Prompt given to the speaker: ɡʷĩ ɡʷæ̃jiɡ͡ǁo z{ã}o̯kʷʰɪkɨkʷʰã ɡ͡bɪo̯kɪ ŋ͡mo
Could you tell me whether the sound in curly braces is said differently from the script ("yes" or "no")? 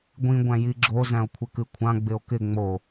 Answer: yes